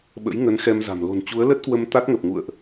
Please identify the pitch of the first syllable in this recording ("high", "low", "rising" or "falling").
rising